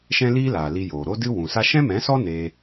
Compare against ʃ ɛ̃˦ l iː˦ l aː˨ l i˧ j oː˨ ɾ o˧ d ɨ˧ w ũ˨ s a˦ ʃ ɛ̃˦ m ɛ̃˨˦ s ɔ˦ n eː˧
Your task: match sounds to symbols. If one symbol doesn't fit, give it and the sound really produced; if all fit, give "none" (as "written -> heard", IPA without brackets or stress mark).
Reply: none